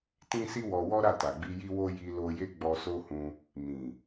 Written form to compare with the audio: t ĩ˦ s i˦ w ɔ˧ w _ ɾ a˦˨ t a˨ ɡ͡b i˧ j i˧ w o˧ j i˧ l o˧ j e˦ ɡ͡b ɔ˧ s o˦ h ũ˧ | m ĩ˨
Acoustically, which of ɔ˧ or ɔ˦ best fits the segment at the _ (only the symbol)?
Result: ɔ˦